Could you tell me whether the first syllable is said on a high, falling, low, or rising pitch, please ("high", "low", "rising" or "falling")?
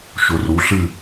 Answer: low